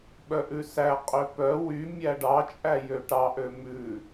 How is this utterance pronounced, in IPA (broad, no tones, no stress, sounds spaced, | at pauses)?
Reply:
ɓ œ ʔ ʉ s æ qʼ ø p œ w y mʲ æ ɖ ɑ t͡ʃʼ æ j ø ʈ ɑ ʔ ø m ʉ